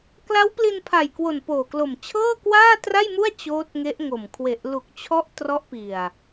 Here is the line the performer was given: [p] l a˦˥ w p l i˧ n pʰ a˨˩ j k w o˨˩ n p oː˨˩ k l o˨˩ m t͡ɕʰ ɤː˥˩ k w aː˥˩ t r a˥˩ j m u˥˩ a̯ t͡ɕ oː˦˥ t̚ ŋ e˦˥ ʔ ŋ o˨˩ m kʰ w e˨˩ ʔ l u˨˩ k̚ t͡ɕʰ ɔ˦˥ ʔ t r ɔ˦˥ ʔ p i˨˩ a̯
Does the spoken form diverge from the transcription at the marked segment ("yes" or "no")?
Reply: yes